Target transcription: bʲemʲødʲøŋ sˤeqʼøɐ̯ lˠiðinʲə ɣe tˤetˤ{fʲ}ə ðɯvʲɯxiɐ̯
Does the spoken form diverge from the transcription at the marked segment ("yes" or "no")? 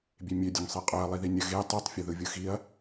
no